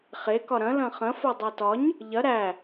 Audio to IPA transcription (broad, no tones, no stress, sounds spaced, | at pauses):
χ e k ɒ ɾ ɐ̃ l ɐ̃ χ ɐ̃ f o dˤ æ t ɒ ɲ | ʎ ɐ ɾ æ